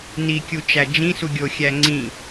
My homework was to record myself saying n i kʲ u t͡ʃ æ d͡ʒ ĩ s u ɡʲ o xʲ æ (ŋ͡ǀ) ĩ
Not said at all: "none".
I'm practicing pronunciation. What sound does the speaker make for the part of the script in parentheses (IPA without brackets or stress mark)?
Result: ŋ͡ǀ